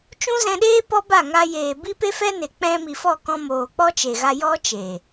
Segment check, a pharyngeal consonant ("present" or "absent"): absent